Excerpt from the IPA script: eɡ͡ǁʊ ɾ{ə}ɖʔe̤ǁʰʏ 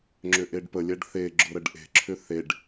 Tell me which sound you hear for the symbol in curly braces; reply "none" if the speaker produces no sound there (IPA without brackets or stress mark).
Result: ə